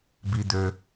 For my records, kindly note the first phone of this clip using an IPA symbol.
b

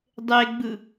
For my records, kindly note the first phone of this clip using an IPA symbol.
dˤ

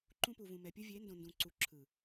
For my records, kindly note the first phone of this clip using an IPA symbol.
ǃ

